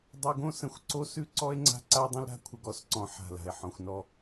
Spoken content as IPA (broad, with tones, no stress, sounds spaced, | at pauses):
dˤ u˨ ɡ õ˦ s ə̃˨ xʷ ǀ o˦ s ʉ˦ ǀ ɔ˦ e̯ ŋ͡ǀ a̤˦ ǀ a˦ dˤ ə̃˦ l ɾ a̤˦ kʷʰ ə˨ ɡ ɔ˦ s ǀ ɔ̃˨ ħ a̤˨ l a̤˨ e̯ ħ ɔ̃˨ xʷ n ɔ˦˨